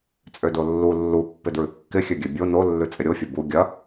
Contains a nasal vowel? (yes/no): no